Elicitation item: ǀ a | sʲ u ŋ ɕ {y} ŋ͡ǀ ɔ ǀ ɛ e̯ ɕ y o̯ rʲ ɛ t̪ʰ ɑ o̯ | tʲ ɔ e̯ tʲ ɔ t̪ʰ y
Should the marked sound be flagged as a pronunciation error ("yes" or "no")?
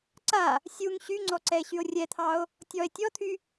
no